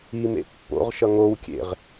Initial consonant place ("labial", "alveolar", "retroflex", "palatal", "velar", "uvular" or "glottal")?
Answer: labial